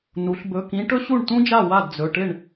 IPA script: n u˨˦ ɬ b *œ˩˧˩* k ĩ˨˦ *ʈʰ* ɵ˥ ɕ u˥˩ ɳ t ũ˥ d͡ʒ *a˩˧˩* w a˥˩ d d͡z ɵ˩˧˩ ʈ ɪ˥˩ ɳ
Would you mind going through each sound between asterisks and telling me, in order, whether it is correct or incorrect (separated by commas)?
incorrect, incorrect, incorrect